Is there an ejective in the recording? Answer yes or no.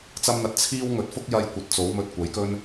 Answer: no